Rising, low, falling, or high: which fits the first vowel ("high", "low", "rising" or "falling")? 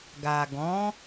low